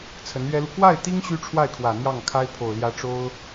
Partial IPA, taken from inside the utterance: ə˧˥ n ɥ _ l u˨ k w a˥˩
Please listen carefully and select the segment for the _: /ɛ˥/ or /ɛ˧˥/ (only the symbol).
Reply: ɛ˥